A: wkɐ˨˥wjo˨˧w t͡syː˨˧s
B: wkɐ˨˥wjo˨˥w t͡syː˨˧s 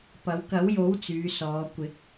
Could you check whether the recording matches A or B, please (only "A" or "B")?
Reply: B